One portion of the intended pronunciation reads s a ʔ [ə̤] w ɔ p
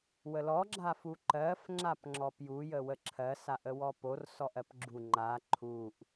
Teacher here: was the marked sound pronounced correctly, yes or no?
no